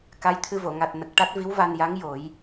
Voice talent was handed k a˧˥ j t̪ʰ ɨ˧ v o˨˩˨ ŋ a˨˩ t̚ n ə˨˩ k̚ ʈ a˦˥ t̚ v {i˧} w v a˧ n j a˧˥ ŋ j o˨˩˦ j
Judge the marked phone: incorrect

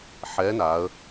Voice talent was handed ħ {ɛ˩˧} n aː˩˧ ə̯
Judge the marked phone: incorrect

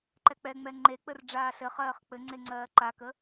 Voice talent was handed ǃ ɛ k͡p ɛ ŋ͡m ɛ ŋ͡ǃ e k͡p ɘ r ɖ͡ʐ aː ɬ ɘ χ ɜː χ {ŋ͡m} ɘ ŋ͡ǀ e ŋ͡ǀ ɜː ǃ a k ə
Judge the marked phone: incorrect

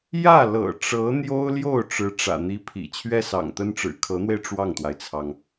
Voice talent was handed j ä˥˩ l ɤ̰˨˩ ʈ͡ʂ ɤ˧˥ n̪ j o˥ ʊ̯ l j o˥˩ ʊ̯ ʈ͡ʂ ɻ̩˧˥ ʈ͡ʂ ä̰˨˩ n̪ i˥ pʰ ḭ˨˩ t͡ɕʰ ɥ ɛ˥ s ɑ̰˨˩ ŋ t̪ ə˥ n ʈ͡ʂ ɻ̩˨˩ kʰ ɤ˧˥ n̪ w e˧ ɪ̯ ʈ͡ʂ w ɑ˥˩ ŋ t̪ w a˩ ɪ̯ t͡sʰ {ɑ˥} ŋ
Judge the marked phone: incorrect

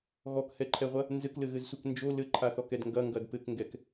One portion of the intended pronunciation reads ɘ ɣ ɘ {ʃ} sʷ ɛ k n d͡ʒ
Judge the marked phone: incorrect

